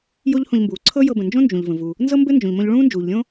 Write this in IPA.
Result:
j o˥ ʎ h õ˧ ʎ m b uː˩ ǀʰ ɤ˥ j ɤ˧ b ə̃˩ n d͡ʒ õ˥ n d͡ʒ ũ˩ ʎ v ə̃˩ v u˩ | n z ɤ˥ m b ɘ˥ n d͡ʒ õ˩ ʎ m õ˧ ʎ ɭ ũː˥ n d͡ʒ uː˩ ʎ lʲ õ˥

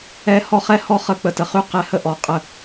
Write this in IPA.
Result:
ɛ˦ h ɔ˦ χ ɛ˦ h ɔ˦ χ ə˦˨ k͡p ə˨ t ə˨ χ y˦ q ɛ˦ h ə˦ ʔ ɔ˨ qʼ ə˦˨

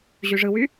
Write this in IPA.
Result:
ʑ y ʐ ɯ w y

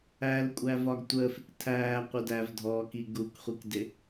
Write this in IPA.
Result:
æ l kʷʼ æ v ɒ ɡ tʷ əː f ɪ k tʰ æː qʷ ə d æ v dʱ ɔː k i ɡ u k χʷ i k d ɪ

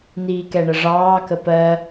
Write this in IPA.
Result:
n̪ iː k ɛ ɳ ə ʐ ɑː k ə p ɜ

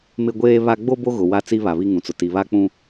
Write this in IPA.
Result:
m ɪ˦ ɡʷ eː˦ β a˦ ɡ͡b o˦ b o˦ ɣ ʊ˨ w a˦˨ t͡s i˦ β a˨ β i˦ ŋ ũ˨ t͡s ʊ˨ t i˨ β a˦ k͡p ũ˦

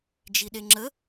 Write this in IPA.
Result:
d͡ʒ i ɗ e ŋ͡ǁ ə

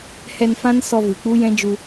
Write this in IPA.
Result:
h ɛ˧ n f ã˦ n s ɔ˧ v ɨ˨ k͡p u˦ j ɛ̃˦ d͡ʒ u˧

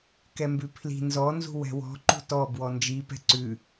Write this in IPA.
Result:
k ɛ m b ʉ pʰ l i̤ n z ɔ n z ṳ w ɛ̤ w ɔ̤ ǃ ṳ t ɔ b w ɔ n d͡ʒ i p ɛ̤ ǀ ʉ

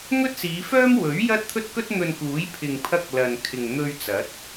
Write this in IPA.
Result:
ŋ ɵ˥ t̚ s iː˨˧ f œː˥ m w ɵ˨˥ ɥ j ɐ˥ t̚ t̪ʰ ɵ˥ t̚ k ɵ˥ t̚ n̪ ɵ˧ n k uː˨˥ j pʰ ɪ˨ ŋ pʰ ɐ˧ k̚ l ɐ˨ n kʰ ɪ˨ ŋ n̪ ɵ˧ ɥ t͡s ɐ˨˥ t̚

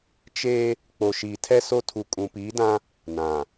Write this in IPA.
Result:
t͡ʃ e˦ | k͡p o˨ ʃ iː˨ tʰ ɛ˦ s o˦ tʰ u˨ kʼ ũ˨ p iː˨˦ d ã˦ | n ã˨

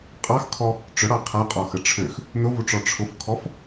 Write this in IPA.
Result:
qʼ ɑ x kʰ ɔ | ʈ͡ʂ ʊ ɽ ɑ qʰ a qʼ ɔ x ə ʈ͡ʂʰ ø x | n ʊ v u ʈ͡ʂ ɔ ʈ͡ʂʰ ʊ f kʰ ɔ f

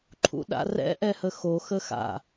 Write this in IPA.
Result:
ǃʰ ṵ ɗ a̰ r ɛ̰ ʔ ɛ h ə x o x ə x a̰

